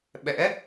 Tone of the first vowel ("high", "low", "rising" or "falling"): rising